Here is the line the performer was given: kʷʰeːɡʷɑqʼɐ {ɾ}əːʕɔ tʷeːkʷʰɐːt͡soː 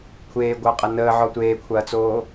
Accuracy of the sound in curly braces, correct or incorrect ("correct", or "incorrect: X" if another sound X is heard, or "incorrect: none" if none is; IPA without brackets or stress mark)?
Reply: incorrect: n